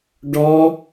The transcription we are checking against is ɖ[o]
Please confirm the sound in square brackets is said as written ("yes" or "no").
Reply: no